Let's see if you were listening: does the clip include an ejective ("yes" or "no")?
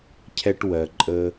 yes